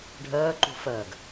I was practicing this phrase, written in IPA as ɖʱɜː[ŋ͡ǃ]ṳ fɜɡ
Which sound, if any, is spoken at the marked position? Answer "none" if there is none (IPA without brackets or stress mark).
ǃ